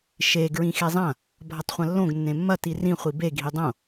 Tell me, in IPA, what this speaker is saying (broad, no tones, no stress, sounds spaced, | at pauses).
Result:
ʃ e ɡ ɹ ĩ x e zˤ ɐ̃ | bʱ ɐ tˤ χʷ ɐ̃ lː õ ɡ nː ẽ mː ɐ t i r ĩ χʷ i b e ɡʱ i dˤ õ